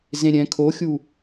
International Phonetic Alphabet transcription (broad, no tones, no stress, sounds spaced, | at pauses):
z ẽ ɾʲ ɛ̃ kʰ o xʲ u